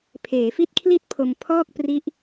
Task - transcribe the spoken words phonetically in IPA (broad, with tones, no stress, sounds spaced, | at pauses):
pʰ eː˩˦ f i˥˩ t̚ kʰ l i˥˩ t̚ pʰ o˧ m pʰ ɔː˥˩ k̚ p r i˦˥ ʔ